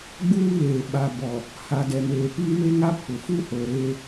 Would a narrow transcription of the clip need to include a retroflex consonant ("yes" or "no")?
no